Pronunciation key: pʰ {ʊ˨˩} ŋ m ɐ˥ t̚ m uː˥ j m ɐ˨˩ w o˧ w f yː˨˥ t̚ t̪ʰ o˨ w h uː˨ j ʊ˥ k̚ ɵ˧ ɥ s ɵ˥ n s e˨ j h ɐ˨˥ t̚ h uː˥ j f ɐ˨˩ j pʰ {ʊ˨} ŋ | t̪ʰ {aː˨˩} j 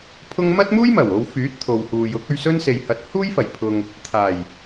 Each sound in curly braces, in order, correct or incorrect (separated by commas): incorrect, correct, correct